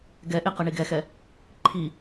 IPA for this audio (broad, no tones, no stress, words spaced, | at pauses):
ɡɛʔe qʌɳiɡɛxɛ | ǃʰi